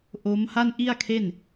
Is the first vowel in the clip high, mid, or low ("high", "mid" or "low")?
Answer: mid